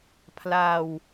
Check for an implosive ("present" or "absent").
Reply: absent